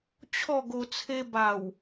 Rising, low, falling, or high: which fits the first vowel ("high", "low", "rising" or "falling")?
falling